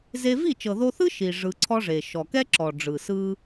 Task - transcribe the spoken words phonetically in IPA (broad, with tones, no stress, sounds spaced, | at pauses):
z e˦ v i˦˨ t͡ʃ ɤ˨ ð o˧ θ ɯ˦ ʃ i˨ ʐ ɯ˧ ǀʰ ɔ˦ ʐ e˨ ʃ ɔ˨ k ɛ˦ ǁ ɔ˨ ɖ͡ʐ ɯ˨ s ɯ˦